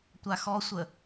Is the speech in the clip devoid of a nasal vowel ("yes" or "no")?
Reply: yes